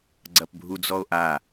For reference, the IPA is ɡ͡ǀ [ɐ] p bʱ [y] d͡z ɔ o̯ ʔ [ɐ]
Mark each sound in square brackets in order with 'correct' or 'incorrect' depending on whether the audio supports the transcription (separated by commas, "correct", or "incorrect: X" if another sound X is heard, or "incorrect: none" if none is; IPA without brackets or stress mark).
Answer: correct, incorrect: u, incorrect: a